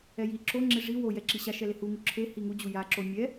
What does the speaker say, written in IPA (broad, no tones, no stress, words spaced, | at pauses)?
ɛji ǁo ŋ͡ǁeʐi wo jɛǁiɕa ʃɛlehu ŋuǁʰe hiŋu d͡ʑuja ǁomʲɛ